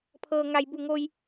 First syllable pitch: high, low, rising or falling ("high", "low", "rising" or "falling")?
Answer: low